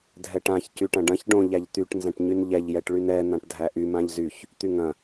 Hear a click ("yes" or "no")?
no